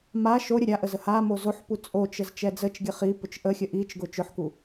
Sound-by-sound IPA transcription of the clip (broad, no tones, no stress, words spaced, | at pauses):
ma ʃo ɾʲəɾʲaʔəz əhamo zoħpu t͡sʼot͡ʃəz t͡ʃɛd͡zət͡ʃɡʲə χipʊt͡ʃ ʔəxʲə ʔit͡ʃɡʊ t͡ʃʊħku